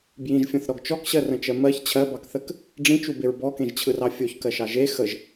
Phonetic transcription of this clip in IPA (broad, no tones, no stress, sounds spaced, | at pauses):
b j ĩ ʒ fʲ ɔ̃ θ ɾ ɔ ɡ t͡ʃ ɔ k ɕ ɜ r ə̃ t͡ʃ ɜ m ɜ ç t͡ɕʰ ɜ b ɑ k θ ə k | ɖ͡ʐ ĩ t͡ʃ u b e ɹ b ɔ k ẽ ʒ t͡ɕʰ ɯ r ɑ fʲ o ç k ɜ ʃ ɑ ʒ e x ə ʒ